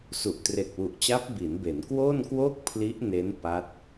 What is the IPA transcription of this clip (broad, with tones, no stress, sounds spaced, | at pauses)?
s u˨˩ ʔ t r e˨˩ k̚ w u˨˩ ʔ t͡ɕ a˦˥ p̚ b i˩˦ n b e˩˦ n k w oː˥˩ n k w oː˥˩ k̚ pʰ l i˦˥ ʔ n e˦˥ n p a˦˥ t̚